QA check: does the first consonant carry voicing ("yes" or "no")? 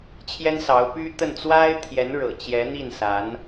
no